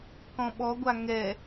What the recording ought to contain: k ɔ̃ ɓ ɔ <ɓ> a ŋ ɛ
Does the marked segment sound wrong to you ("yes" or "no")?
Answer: yes